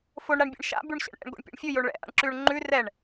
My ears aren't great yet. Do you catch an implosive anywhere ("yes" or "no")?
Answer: no